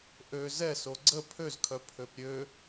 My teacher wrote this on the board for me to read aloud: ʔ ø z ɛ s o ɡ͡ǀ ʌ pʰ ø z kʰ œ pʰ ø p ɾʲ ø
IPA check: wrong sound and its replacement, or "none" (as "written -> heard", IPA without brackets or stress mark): ʌ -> ə